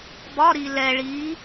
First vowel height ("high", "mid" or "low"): low